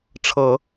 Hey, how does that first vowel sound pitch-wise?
low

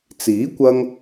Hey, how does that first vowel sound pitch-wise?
rising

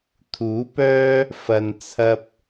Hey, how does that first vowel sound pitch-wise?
rising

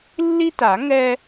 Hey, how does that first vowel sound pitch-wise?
high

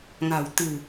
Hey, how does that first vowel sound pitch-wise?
low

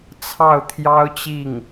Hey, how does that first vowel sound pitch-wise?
falling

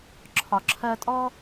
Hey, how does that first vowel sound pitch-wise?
low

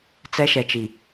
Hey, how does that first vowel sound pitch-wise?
high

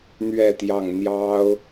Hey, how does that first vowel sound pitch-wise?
falling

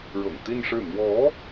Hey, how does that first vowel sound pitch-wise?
low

